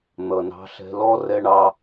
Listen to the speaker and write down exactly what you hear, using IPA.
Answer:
n̪ ʌ˨ n ɑ̤˧ ɬ ɛ̤˧ l ɔ˦ r ɛ˦ ɳ ɑ˦

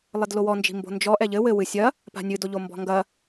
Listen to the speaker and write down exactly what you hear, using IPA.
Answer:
lˠ ɘ d l o w ɔ n d͡ʒ i̤ m b o̤ n d͡ʒ ɔ ʔ ɛ ʎ ɘ w ɘ w ɨ sʲ ɐ | p a̤ nʲ ɨ d o ʎ o m b ɔ̤ ŋ ɡ ɐ

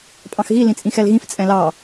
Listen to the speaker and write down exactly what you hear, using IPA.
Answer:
pʼ ɑ̃ x ɣ i l ĩ t͡sʼ ĩ x ɛ l ɣ ĩ f t͡sʼ ɛ̃ l ɑ

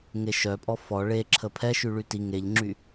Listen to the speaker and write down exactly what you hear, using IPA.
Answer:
ŋ e ʃ œ pʼ ɔ f ɔ ɭ e ǁʰ ə pʰ ɛ ʃ y ɭ y t i ŋ e ʎ ŋ͡ǁ y

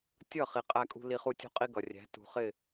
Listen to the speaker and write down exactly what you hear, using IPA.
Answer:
tʲ ʌ˦˨ χ i˨ qʼ æ˧ kʼ ṳ˧ l i˧ χ u˦˨ tʲ ṳ˦ qʼ i˦ ɡ ʌ˨ rʲ æ̤˨˦ t ṳ˨ χ ɪ˦˨

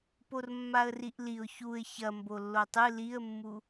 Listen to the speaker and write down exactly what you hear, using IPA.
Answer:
p o r mː a ə̯ r i ʔ l i ʊ̯ ç u ɪ̯ ç ɐ m b o lː o tˤ ɨ l i ə̯ mː u

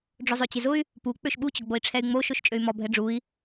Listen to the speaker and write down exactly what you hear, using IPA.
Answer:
ɖ͡ʐ ʊ zˤ ø t͡ɕ ɪ z ʊ y̯ | p u k͡p ø ʃ ɓ u t͡ɕ ʊ ɡ͡b o i̯ ʈ͡ʂʰ ɛ y̯ ŋ͡m o ʃ o ʃ t͡ʃʼ ø y̯ m ɔ bʱ ɛ ɖ͡ʐ u i̯

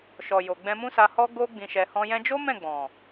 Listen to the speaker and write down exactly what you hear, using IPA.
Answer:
ʃ ɔ˨ j o˨ ɡ͡b ɛ̃˧ m ũ˦ s a˧ h ɔ˦ ɡ o˧ ɡ͡b ĩ˨ ʃ ɛ˨ h ɔ̃˧ j ɛ̃˧ d͡ʒ o˦ m ɛ̃˦˨ ɡ͡b ɔ̃˨

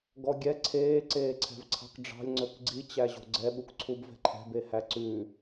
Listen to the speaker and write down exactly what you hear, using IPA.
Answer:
ɡ ɔ ɡʲ ɛ ǀʰ eː ǀ eː ǀʰ ɛ̤ v ǀʰ ɑ̤ k ɖ͡ʐ ɑ̤ lʲ ŋ͡ǀ ɵ k ɡ͡ǀ i t͡ɕ æ ʑ o̤ ɡ͡ǀ ɛ ɓ u k ǀʰ u b v ɛ̤ ǃʰ ɛ̤ b e h æ ǀ ʉ

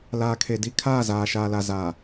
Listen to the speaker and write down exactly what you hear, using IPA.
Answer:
l aː˨ kʰ e˨ d i˦ kʰ aː˦˨ z aː˨ ʃ aː˨ l a˨ z aː˨

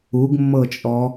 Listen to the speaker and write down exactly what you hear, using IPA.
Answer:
u ɡ mː ɤ t͡ʃʼ ɔ

